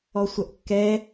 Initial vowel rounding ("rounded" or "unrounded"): rounded